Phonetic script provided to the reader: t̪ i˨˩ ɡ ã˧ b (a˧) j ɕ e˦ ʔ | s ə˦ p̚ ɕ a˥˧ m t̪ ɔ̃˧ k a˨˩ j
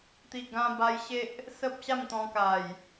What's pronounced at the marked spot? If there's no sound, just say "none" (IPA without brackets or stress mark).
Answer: a˧